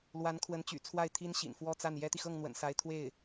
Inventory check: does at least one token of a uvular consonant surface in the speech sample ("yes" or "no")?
no